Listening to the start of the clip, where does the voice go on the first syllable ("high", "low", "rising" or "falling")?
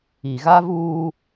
low